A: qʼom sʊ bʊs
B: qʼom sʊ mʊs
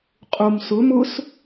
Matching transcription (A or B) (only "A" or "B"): B